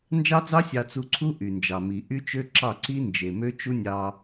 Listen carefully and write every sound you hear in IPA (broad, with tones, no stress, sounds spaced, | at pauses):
n d͡ʒ ɑ˦ d͡z ɑ˦ sʲ ɑ˧ t͡s u˧ ǀʰ u˦ ʔ y˨ n d͡ʒ ɑ˨ m i˨ ʔ y˦ t͡ʃ ø˦ ǁ ɑ˦˨ ǀ i˦ n d͡ʒ e˨ m ø˦ t͡ʃ u˦ nʲ ɑ˧